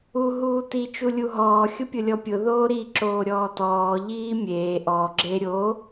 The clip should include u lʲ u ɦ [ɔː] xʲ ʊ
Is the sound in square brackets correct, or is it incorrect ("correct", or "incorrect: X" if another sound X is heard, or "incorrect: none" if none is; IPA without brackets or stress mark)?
correct